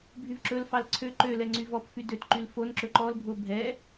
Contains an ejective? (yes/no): no